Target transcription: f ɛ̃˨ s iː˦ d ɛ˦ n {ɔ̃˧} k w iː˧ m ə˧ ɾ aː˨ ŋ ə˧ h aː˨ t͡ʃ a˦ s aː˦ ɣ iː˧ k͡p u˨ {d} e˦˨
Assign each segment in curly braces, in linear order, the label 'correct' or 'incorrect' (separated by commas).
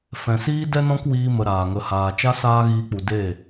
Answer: incorrect, correct